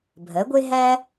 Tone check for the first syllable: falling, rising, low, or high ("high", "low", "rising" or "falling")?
rising